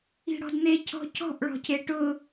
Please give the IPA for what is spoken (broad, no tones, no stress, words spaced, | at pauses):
i̤ɽɔ̤dn̪e cʰɔ̤cʰɔ̤ʔ ɭɔ̤cʰeʈʊ